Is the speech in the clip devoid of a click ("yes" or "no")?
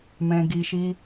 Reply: yes